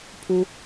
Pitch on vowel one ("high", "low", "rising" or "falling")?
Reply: high